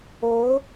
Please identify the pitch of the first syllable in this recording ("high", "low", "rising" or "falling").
rising